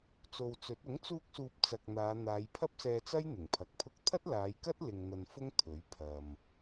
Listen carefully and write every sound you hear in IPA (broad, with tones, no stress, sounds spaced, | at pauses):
t͡s o˨ w t͡s ɵ˨˥ t̚ ʊ˨˥ ŋ t͡s uː˧ k̚ s uː˨ p̚ t͡s ɐ˨ k̚ n̪ aː˨˧ n̪ aː˨˧ j pʰ ɐ˥ p̚ s ɛː˧ t͡s ɐ˥ j n̪ ɪ˨˩ ŋ pʰ ɐ˨˥ k̚ pʰ ʊ˥ k̚ t̪ʰ ɐ˥ t̚ l aː˨˧ j k ɐ˥ t̚ l ɪ˧ ŋ n̪ ɐ˧ n f ʊ˥ ŋ t̪ʰ ɵ˨˥ ɥ pʰ ɐ˨ m